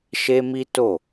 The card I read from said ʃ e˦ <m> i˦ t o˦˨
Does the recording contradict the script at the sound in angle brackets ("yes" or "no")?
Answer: no